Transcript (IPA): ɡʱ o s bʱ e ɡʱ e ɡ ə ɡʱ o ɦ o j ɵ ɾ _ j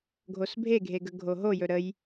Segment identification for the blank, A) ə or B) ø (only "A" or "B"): A